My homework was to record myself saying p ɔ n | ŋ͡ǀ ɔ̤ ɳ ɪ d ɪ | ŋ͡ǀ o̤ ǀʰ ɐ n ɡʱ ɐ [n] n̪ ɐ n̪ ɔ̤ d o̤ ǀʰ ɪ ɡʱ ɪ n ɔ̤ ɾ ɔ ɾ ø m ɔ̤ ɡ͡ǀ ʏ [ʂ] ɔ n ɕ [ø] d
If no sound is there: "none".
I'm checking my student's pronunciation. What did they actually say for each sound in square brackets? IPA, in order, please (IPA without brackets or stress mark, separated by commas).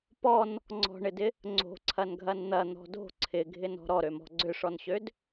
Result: n, ʂ, ø